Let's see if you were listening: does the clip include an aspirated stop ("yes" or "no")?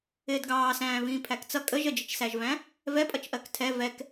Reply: yes